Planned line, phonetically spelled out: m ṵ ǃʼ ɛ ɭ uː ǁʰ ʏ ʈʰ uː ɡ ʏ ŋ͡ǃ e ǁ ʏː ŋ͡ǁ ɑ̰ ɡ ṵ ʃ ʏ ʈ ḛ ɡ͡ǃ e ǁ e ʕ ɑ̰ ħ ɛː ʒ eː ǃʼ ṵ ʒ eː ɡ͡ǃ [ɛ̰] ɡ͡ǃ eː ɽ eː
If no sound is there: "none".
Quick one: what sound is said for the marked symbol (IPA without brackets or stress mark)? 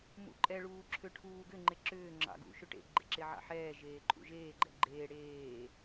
ɛ̰